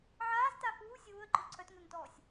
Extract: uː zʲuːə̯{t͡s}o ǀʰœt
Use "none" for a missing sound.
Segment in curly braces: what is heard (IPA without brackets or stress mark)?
ǃ